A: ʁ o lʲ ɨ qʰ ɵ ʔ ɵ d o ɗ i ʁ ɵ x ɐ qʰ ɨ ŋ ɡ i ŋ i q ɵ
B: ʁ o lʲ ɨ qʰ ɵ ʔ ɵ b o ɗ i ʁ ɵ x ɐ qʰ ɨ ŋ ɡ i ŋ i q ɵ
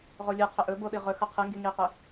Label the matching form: B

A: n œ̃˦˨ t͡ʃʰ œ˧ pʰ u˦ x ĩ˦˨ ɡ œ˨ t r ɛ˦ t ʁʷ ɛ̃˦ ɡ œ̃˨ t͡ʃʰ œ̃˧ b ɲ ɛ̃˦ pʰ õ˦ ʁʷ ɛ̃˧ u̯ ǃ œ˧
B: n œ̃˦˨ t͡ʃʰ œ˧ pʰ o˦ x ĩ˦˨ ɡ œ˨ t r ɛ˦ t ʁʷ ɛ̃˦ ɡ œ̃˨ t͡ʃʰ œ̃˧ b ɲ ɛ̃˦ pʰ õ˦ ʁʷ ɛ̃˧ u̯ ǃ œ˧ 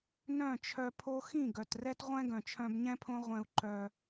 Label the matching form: B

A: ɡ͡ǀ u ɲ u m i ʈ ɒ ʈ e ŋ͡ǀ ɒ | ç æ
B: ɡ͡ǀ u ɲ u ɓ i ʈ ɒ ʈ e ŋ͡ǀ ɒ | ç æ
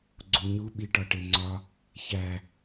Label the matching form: B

